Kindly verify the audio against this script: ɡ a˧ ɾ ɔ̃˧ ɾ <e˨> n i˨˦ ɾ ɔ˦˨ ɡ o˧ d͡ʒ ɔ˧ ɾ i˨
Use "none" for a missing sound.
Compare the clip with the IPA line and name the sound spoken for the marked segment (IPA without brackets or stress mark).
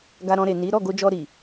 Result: e˨